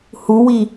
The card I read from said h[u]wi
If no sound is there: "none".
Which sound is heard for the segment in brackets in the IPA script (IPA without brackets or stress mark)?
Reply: u